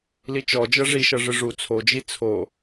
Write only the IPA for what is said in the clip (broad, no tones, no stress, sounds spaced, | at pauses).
l i t͡ʃ ɔ d͡ʒ ɤ ʐ i ʃ ɤ ʐ ɯ ʐ u t͡sʰ o d͡ʒ i t͡sʰ o